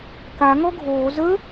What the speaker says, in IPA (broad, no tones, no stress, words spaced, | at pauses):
ka ŋɔɡʱoː zə